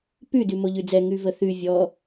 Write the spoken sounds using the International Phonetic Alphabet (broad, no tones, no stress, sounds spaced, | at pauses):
p ʉ d ʉ m o ʎ ʉ d͡z ɛ ŋ ʉ v ə θ ʉ vʲ ɔ